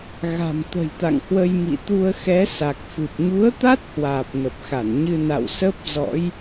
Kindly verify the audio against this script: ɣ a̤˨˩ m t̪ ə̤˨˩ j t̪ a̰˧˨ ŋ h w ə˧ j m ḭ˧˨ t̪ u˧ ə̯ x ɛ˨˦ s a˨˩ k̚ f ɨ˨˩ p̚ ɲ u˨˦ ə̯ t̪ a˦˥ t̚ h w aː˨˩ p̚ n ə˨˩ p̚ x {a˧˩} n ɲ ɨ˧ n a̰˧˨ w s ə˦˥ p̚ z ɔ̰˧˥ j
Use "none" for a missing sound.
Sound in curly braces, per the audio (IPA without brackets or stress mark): a˧˩